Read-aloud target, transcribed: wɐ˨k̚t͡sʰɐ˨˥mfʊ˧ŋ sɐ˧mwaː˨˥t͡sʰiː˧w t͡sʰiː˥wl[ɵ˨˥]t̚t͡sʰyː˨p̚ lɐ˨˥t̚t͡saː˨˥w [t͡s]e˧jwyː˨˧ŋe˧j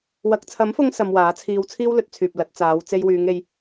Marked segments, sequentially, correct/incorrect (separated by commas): correct, correct